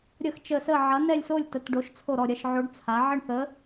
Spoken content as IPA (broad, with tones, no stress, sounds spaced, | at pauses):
ɾʲ ə˥˧ x t͡ʃ ə˥˧ s ə˥˧ ʕ ɐ˧˥ n ɛ˥˧ lʲ s o˥˧ lʲ t ə˧˥ t ɖ o˧˥ ʃ t͡sʰ o˥˧ ɾ ɔ˥˧ ɾʲ ɐ˥˧ ʃ ʕ o˧˥ ɖ t͡sʰ a˧˥ ʕ ə˥˧ ɳ θ ə˧˥